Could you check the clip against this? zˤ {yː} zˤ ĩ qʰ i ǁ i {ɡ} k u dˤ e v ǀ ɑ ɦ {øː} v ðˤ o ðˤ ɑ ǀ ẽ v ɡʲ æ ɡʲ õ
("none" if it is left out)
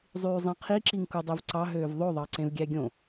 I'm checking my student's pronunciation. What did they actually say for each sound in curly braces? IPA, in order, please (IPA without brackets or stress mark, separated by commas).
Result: yː, ŋ, øː